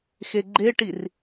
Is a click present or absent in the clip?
present